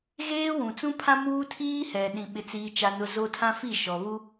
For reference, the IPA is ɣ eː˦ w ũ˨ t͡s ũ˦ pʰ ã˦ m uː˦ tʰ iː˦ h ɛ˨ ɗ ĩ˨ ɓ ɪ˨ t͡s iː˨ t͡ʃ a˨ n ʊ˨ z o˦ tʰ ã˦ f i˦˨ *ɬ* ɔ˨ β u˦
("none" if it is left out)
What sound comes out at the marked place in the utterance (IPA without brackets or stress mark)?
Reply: ʃ